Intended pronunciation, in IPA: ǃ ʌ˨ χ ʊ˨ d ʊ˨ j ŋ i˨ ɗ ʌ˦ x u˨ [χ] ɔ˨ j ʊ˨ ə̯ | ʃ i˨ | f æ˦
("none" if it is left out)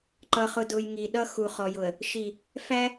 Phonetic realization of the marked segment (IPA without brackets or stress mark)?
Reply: χ